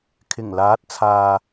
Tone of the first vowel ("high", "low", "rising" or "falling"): low